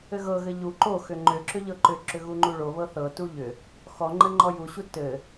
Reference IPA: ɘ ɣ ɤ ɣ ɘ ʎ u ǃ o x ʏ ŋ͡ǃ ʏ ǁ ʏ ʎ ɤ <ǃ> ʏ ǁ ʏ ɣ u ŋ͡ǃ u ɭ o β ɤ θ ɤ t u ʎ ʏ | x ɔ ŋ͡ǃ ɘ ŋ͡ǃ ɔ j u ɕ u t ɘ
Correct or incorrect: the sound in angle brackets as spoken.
correct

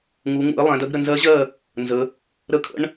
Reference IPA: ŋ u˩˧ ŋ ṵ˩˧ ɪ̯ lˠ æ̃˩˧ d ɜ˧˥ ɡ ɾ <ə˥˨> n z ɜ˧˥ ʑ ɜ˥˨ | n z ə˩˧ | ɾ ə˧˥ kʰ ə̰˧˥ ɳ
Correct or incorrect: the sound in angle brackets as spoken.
correct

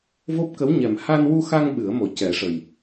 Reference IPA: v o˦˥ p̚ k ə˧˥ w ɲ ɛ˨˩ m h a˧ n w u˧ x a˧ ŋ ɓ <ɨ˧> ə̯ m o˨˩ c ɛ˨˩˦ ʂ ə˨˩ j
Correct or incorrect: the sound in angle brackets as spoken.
incorrect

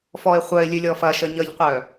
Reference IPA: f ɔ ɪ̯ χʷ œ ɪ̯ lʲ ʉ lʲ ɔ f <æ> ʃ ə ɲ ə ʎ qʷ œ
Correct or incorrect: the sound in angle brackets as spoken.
incorrect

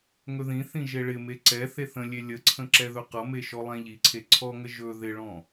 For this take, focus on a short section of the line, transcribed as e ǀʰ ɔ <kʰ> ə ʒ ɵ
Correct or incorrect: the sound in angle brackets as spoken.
incorrect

